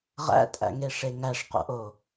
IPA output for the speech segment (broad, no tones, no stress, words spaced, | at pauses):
ʁæ̰tʼæ̰ŋe ʂeŋæʂqo̰ʔo